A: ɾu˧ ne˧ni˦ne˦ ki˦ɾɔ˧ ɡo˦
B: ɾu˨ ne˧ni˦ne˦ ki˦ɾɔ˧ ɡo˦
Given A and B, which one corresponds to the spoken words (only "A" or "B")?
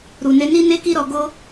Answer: B